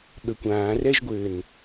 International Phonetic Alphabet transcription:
ɓəkʷ ãːrɛʒɡʷɘːn

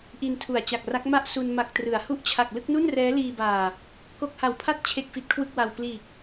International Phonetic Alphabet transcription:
ʔi˧ntʰu˨˩a̯ t͡ɕa˨˩k̚ra˦˥k̚ ma˥˩ʔ su˧n ma˨˩k̚trɯ˩˦a̯ hu˦˥ʔt͡ɕʰa˨˩k̚ lɯ˥˩k̚nu˥˩nrɛː˦˥ liː˧baː˨˩ | ko˥˩k̚ ha˨˩wpʰa˥˩t̚ t͡ɕʰe˥˩k̚fi˦˥t̚kʰwɯ˥˩k̚ wa˧w pliː˨˩k̚

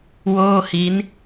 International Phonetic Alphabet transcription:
woː˥˩hi˦˥n

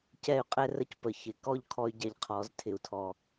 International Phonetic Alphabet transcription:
cɛ˦˨y̯qʼɛ˦rə˦c pə˨ çɪ˨kɔ˦ʎ kʰɔ˦y̯ɟɛ˧ʎqʰɔ˨˦z tʰɪ˨u̯tʰɔ˨

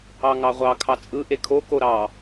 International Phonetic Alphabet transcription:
ɑŋɑʁʷɑ kʰɑt͡sʼɯʔe kʰoko ɾɑ

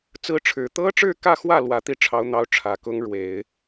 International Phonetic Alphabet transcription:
t͡sɹ̩˥ʈ͡ʂʰɻ̩˧˥ t̪ɤ˥ʈ͡ʂɻ̩˥˧kä˥˧xwä˥˩ lwä˧˥t̪i˥˩ ʈ͡ʂʰɑ˧˥ʊ̯n̪ɑ˧˥ʊ̯ ʈ͡ʂʰä˨˩kʊ˥ŋ ɻwe˨˩˦ɪ̯

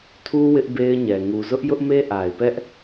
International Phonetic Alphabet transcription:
tʰu˦ wɪ˦ʔbe˦ɪ̯ɲɛ˨ ŋu˨zʊ˦ʔ jʊ˦ʔme˦ʔa˨ɪ̯pɛ˦ʔ

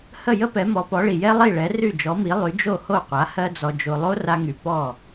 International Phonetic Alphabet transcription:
hə˥˩jə˥pɛ˩˥ mɔ˩˥pɔ˩˥ɭi˩ jɛ˥lˠi˥˩ɭɛ˩˥ ry˥˩d͡ʒɔ˩˥mi˩˥ lˠy˩˥ d͡ʒo˥˩ho˥˩qʷa˩˥ hɜ˥d͡zɔ˧d͡ʒo˧ lˠo˥ra˧ŋy˩ pɔ˥˩

